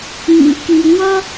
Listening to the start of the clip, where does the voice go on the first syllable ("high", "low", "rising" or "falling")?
low